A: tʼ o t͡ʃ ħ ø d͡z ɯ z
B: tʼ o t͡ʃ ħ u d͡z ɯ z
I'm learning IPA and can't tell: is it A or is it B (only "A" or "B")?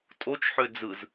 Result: A